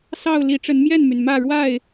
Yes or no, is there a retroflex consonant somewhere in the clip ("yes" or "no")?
yes